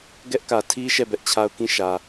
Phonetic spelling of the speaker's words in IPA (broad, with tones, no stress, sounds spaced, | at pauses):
ɡ ɛ˦ ʔ k ä˨ tʰ i˦ ʃ ɛ˦˨ b ɛ˦ ʔ t͡ɕʰ a˦ ʊ̯ k ĩ˦˨ ʃ ä˨